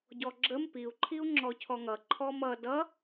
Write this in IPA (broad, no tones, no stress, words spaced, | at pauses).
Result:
ɟɔɡ͡ǁəm piu̯ ǃʰiu̯ŋ͡ǁɔcʰɔŋʌ ǃʰɔmʌ dʌ